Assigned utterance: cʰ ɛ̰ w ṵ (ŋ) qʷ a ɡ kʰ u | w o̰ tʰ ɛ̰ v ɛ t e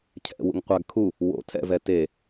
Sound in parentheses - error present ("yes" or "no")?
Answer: no